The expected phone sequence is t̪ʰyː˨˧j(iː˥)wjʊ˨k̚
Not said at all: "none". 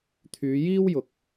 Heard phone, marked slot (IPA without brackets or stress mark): iː˥